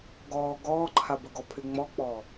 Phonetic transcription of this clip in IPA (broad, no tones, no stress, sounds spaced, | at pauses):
ɡ ɔː ɡ ɔː ǃʰ a b ɵ ɡ ɔ pʰ y ŋ͡m ɔ k͡p ɔː